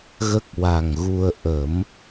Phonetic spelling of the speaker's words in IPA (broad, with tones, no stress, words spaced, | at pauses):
ɣə˦˥k̚ wa˨˩ŋɣu˧ə̯ ʔə˨˩˦m